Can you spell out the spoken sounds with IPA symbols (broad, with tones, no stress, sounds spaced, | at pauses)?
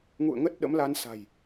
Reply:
ŋ ṵ˧˨ ə̯ ŋ ə˦˥ t̚ ɗ ə̰˧˥ m l a˧ n s a̤˨˩ j